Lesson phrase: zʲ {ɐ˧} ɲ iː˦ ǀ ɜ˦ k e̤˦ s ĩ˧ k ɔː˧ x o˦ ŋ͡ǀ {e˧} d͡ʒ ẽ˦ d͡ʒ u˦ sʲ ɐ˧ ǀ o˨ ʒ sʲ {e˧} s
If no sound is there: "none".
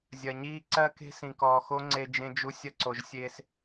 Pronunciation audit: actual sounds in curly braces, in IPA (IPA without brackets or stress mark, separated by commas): ɐ˧, e˧, eː˧